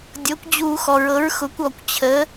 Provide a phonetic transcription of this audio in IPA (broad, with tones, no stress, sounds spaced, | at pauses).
dʲ ɤ˩˥ kʷ d͡ʑ u˧˩˧ x ɔ˩ ɹ ɤ˩˥ ɹ x ʊ˩˥ kʷ ɔ˩ kʷ t͡ɕʰ ə˩˥